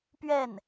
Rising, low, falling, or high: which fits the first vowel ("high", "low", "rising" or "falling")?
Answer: falling